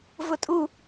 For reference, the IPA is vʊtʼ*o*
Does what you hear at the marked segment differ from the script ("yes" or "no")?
yes